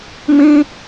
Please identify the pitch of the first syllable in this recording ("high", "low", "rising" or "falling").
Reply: high